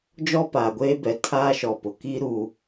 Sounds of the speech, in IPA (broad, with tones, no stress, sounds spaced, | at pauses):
d͡ʒ ɔ˦ p aː˨ ɡʷ eː˦ b ɛ˨ tʰ aː˦ ʃ ɔ˨ p ʊ˨ k i˦ ɾ u˦